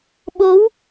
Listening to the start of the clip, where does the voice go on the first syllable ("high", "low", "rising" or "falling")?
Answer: rising